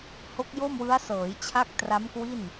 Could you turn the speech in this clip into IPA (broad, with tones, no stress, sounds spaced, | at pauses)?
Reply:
h o˦˥ k̚ j o˥˩ m w ɯ˦˥ a̯ s ɤː˩˦ j t͡ɕʰ a˦˥ k̚ t r a˦˥ m k w i˥˩ n